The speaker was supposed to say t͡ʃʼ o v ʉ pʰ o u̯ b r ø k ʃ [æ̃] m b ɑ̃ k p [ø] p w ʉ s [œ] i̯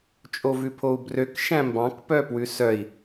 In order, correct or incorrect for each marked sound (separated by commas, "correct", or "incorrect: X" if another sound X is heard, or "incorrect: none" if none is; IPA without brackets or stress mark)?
correct, incorrect: œ, correct